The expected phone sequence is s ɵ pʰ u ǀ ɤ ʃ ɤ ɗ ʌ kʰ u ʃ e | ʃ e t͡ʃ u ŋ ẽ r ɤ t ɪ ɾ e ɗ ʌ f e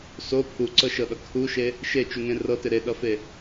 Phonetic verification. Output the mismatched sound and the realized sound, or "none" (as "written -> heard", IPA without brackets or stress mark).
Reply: ɵ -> o